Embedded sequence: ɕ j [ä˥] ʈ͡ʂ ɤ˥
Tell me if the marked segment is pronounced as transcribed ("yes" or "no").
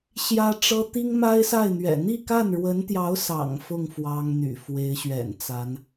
yes